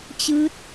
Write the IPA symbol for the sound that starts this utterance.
t͡ɕ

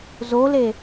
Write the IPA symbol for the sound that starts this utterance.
z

